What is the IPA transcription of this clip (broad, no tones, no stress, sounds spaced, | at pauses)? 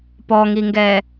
p ɔ ŋ i ŋ ɡ ɛ